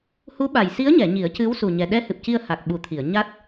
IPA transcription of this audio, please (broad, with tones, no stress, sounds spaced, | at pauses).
h u˧˥ ɓ a˨˩ j s i˧˥ ə̯ ɲ ɛ˨˩˨ ɲ i˨˩˦ ə̯ c ɨ˧˥ w s u˨˩ ɲ ɛ˨˩ ɗ ɛ˧˥ h ɨ˨˩ p̚ c i˧ ə̯ h a˨˩ k̚ ɓ u˨˩ t̪ʰ i˨˩˨ ə̯ ɲ a˦˥ t̚